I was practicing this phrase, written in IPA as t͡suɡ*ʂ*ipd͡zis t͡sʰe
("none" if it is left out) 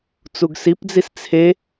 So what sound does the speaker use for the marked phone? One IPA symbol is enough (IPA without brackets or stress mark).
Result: s